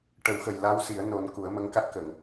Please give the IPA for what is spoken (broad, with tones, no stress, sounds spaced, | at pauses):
ʈ ə˨˩˦ w x ə˨˩ j l a˧˥ w s i˨˩˦ ə̯ n o˨˩˦ n k u˨˩˦ ə̯ m ə˧˥ ŋ k a˦˥ t̚ k ə˨˩˨ ŋ